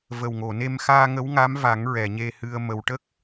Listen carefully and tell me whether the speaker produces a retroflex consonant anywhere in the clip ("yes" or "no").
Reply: yes